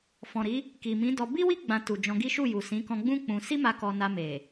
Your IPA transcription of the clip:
f ɔ̃˨ ɾ i˨˦ | k i˨ m ĩ˨˦ d ɔ˧ b i˦ w i˦ ɡ͡b ã˧ t u˨ d͡ʒ ɔ̃˧ ɡ i˦ ʃ u˦˨ j u˨ s ĩ˨˦ k ɔ̃˧ ɡ͡b ũ˦ k͡p ũ˧ s i˦ m a˧ k ɔ˧ n a˧ m e˨

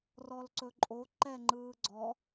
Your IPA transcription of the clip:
r ɔ l ǀ ɵ ǃʼ o ǃ ɛ ŋ͡ǃ ɯː ɡ͡ǀ ɔ

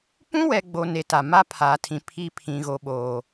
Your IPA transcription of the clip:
p ũ˦ w ɛ˨ ɡ͡b o˦ n e˨˦ t a˨ m a˦ pʰ aː˨ tʰ ĩ˨ pʰ i˦ pʰ ĩ˨ ɣ o˨ ɓ oː˨

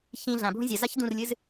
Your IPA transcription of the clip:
ç ĩ ɮ ã bʱ ũ zʲ ɐ z a ç d ũ r lʲ ɨ z

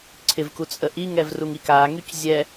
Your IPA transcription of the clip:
ǀʰ ɪ v k u t͡sʼ ə ʔ i ŋ ɛ v r u ŋ i k a ŋ y c zʲ ɛ

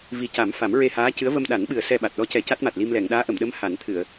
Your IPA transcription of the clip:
v i˨˩˦ c a˨˩˦ m f a˨˩˦ m ɹ e˧ h aː˧˥ c ɨ˧˥ ə̯ v ə˧ m ɗ a˨˩˦ n ɓ ɨ˨˩ ə̯ s ɛ˧ ɓ a˨˩ t̚ ɗ ɔ˧˥ c ɛ˨˩˦ c a˦˥ t̚ m a˨˩ t̚ l i˧ m l ɛ˨˩˨ ŋ ɗ aː˧˥ ʔ ə˨˩˨ m ɗ ə˧˥ m h a˨˩˦ n t̪ʰ ɨ˨˩˨ ə̯

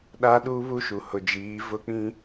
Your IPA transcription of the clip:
ɗ a˦ ɗ uː˦ β u˦ ʃ u˨ h ʊ˨ d͡ʒ iː˨˦ v ʊ˦ k͡p ĩ˦

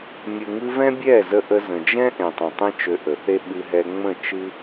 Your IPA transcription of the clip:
mʲ ɯ˨ ŋ ɨ˧ v ɛ̃˦ bʲ ɛ˦˨ z ə˧ ʔ ə˧ z ə̃˨ d͡ʒ ɛ̃˦ ʔ ẽ˨ tˤ ẽ˨ tˤ ẽ˦ t͡ʃ ø˧ ʔ ə˨ θ e˦ ɓ ɨ˧ ɦ ɛ˧ ŋ͡m ə̃˦˨ t͡ʃ ɨ˦

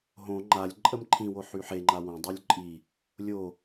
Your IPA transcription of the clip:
ɦ õ ŋ͡ǃ a lʲ ǃʼ ə m ǃʰ ĩ w o ħ y ħ e ŋ͡ǃ a w õ dˤ o lʲ ǃʼ i | lʲ o

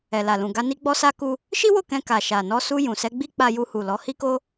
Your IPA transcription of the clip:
ɛ˨ l a˨ l ũ˨ ɡ a˧ n i˦ ɡ͡b ɔ˦ s a˦ k u˧ | ʃ i˦ w o˦˨ k ɛ̃˧ k a˨ ʃ a˨ n ɔ˧ s u˧ j ũ˨ s ɛ˧ ɡ͡b i˦ k͡p a˦ j u˧ h u˨ l ɔ˨˦ h i˦ k o˦

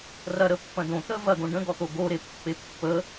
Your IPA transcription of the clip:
r ɐ ɾ ə pː ɐ̃ d õ t̪ ə v ɐ ɡ õ ɖ ə̃ ɡ ɔ t̪ o ɡ o ɾ e pː e pː ə

